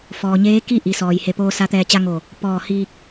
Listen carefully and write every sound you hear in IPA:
f ɔː˩ ɲ eː˧˥ k i˥˨ ʔ i˩˧ s ɔː˩ j h e˧˩ p oː˧ s a˧˥ t̪ ɛː˧ t͡ɕ a˧ ŋ o˧˩ | p ɔː˧˩ h iː˧ k̚

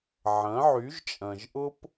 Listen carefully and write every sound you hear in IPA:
ʕ ɐ̃˨˦ ʕ y˨˦ ʒ t͡ʃʼ ɐ̃˨ ʒ ʔ ʊ˦ p

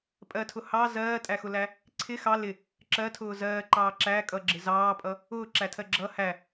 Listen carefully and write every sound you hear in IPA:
pʼ ɜ tʰ ʊ h ɑ z ɜː tʼ æ x ʊ l æ | ǀʰ ɪ x ɑ l ɪ | ǁ ɜ tʰ ʊː z ɜː ǃ ɑː ǁ æ kʼ ʌ ɡ͡ǁ ɪ z ɑː pʼ ʌ | ʊː ǁ æ tʰ ɜ ɡ͡ǁ ʌ h æ

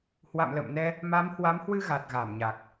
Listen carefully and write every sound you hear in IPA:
h w a̰˧˨ m l ə̰˧˨ m n ɛ˧ | m a˨˦ m h w a˨˦ m h w ɨ˧ ɣ a˨˩ t̚ ɣ a˧˩ m ɲ a˨˩ k̚

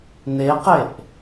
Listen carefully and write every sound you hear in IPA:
n e q e ʔ

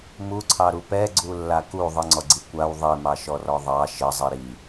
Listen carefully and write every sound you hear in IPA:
m u ǀʰ ɑ ɾ u p ɛ ɡ͡ǀ u lː a k u ðˤ ə ŋ͡ǀ ɔ ɡ͡ǀ i kʷ a w ðˤ i m ɑ ʃ ɔ r ɔ ðˤ ɑ ʃ ə zˤ i ɾ i

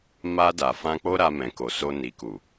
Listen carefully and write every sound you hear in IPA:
m a˧ d a˨ f ã˧ k͡p o˦ ɾ a˧ m ɛ̃˨ k o˨ s o˧ n i˨ k u˨

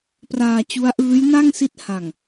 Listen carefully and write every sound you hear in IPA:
p r aː˧ t͡ɕ u˦˥ a̯ ʔ ɯː˦˥ j n a˥˩ ŋ s i˦˥ t̚ h a˨˩ ŋ

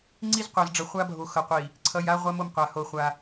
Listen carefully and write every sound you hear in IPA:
ŋ͡ǀ i˦ z qʷ a˨ z ɖ͡ʐ ʌ˨ χʷ a˦ bʱ o˨ x ʌ˨ qʷ i˨ | ǀʰ ʌ˨ j a˦ ʁʷ a˦ m o˦ m qʷ a˨ h o˦˨ χʷ a˦

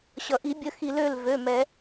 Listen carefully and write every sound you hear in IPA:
ɕ ʌ˩ ʔ i˨˩˦ bʲ ə˩˧˩ x i˨˩˦ l ø˩˧˩ l v ø˩˧˩ m ɛ˨˩˦

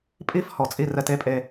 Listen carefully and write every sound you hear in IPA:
pʼ i˥ f h ɔ˧˩ t͡sʼ i˥˧ r ɛ˧ t e˥˧ pʼ e˧

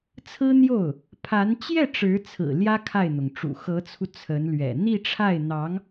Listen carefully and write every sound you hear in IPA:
t͡sʰ ɹ̩˥ n̪ j o˥˩ ʊ̯ | pʰ a˧˥ n t͡ɕ j ɛ˥˩ ʈ͡ʂ ɻ̩˧˥ t͡sʰ ɹ̩˨˩ l j ä˥ kʰ a˥˩ ɪ̯ n̪ ʊ˩ ŋ ʈ͡ʂ ṵ˨˩ x ɤ˧˥ t͡sʰ u˧ t͡sʰ ə˧˥ n l ɥ ɛ̰˨˩ n̪ i˥˧ ʈ͡ʂʰ a˥˩ ɪ̯ n̪ ɑ˧˥ ŋ

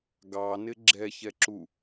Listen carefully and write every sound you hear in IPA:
ɡ ɑ n ɪ ɡ͡ǁ ɛ ç ɛ ǁ u

